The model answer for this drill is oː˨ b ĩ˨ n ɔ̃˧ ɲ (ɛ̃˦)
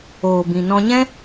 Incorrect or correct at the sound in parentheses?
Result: correct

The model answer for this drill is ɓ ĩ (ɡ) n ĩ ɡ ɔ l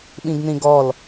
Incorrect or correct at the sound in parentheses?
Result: correct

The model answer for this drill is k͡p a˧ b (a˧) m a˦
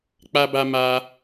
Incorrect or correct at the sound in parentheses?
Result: correct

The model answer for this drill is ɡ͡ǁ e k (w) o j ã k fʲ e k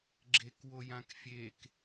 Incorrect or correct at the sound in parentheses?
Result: correct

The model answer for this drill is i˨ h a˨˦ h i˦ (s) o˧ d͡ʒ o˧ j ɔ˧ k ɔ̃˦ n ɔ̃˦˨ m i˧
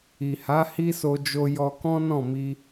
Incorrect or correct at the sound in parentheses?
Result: correct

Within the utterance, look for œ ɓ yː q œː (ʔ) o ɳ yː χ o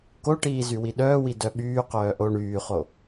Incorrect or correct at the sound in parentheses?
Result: correct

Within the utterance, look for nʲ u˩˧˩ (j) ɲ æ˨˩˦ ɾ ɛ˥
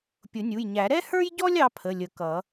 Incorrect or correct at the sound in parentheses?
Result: correct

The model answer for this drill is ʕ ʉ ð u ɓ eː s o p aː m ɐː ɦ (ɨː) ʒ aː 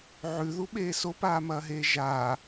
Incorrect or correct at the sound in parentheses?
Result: incorrect: eː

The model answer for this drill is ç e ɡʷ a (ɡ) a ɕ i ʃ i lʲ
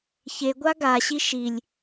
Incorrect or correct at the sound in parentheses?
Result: correct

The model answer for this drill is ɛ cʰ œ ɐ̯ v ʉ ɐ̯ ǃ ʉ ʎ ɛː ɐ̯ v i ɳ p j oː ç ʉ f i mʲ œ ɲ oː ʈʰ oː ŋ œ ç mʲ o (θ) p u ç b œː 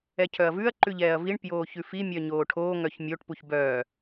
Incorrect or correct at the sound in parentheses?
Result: incorrect: ʈ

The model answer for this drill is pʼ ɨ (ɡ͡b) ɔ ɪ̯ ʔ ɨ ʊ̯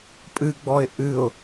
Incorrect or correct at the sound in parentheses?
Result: correct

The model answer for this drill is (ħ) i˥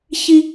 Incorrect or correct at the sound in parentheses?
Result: incorrect: ç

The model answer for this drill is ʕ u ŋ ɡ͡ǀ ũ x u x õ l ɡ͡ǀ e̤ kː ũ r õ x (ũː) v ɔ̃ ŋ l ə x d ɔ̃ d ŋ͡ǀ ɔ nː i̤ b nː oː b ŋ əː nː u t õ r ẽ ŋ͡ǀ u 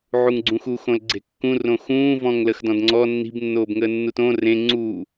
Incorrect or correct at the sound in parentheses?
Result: correct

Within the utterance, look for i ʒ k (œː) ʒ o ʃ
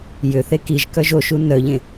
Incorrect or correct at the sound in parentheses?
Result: incorrect: œ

